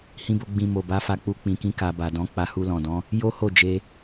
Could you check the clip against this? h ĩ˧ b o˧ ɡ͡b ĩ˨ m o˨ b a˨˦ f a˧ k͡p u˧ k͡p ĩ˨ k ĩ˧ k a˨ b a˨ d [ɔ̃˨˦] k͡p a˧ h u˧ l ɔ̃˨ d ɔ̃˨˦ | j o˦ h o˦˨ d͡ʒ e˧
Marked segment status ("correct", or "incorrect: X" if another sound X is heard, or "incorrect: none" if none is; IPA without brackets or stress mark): correct